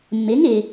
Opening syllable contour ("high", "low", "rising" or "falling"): rising